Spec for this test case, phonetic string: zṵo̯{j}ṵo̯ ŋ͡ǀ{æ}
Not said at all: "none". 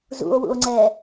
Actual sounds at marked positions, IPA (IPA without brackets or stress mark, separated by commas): w, ɛ